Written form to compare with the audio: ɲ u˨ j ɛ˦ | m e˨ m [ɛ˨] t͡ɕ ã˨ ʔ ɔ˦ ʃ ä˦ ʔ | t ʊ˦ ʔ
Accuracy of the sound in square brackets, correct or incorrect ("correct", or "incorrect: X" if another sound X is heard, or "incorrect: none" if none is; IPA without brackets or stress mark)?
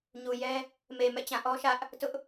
incorrect: ɛ̰˦˨